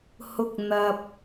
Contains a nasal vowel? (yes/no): no